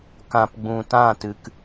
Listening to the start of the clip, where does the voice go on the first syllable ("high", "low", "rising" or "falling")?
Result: low